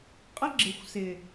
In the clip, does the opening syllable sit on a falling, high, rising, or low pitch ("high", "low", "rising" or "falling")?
high